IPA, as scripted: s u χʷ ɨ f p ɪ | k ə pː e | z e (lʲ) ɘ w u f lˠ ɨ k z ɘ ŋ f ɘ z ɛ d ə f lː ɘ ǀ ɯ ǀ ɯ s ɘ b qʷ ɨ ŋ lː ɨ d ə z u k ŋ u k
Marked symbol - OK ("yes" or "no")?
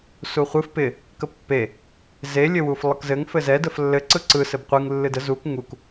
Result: yes